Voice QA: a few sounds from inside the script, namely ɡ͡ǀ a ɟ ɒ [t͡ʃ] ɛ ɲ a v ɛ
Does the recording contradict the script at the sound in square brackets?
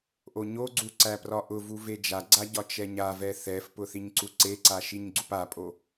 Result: no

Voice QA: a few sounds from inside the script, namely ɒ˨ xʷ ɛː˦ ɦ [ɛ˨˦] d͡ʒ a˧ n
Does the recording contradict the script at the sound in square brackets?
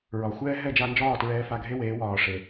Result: yes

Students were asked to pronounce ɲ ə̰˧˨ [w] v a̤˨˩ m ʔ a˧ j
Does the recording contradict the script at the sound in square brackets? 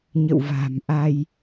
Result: no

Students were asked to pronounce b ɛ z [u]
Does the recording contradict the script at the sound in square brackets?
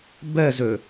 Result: yes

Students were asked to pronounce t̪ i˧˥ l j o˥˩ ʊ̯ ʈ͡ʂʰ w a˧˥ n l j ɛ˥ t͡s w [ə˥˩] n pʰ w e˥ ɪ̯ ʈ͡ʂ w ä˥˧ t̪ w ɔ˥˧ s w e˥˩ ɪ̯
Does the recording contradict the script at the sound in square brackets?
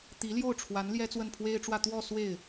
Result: no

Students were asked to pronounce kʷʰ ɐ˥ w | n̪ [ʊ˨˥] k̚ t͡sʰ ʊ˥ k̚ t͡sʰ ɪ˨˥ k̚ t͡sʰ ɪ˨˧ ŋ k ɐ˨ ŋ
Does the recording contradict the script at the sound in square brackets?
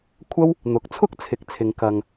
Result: no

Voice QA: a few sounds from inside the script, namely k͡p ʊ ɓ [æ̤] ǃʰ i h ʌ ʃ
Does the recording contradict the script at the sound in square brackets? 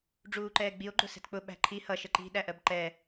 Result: no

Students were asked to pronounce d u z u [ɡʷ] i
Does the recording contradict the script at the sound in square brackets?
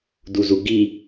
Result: yes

